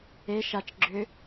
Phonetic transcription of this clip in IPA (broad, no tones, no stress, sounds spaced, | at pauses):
e ʃ a t͡ʃ ɡ͡ǁ ʏ